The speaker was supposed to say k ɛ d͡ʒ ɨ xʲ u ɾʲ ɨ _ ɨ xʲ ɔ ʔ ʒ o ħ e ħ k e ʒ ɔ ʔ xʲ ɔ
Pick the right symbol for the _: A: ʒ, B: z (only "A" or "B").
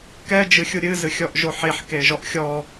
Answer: B